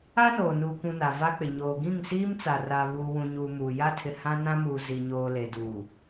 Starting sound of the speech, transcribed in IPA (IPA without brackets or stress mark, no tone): a